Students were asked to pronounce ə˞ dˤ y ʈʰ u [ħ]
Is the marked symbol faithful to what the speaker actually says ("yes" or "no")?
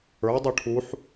yes